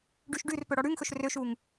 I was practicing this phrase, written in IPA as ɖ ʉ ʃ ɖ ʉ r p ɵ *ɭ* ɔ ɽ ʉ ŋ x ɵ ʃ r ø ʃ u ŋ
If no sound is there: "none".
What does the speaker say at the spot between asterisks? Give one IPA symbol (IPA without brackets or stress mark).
ɽ